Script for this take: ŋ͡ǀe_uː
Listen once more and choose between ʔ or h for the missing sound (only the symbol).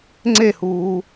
h